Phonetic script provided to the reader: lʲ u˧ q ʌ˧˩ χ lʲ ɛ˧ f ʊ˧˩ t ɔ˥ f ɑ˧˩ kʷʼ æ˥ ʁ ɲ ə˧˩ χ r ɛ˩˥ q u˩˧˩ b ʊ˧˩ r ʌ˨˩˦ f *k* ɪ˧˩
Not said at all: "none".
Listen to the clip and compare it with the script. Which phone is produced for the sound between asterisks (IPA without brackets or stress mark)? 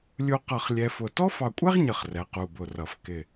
k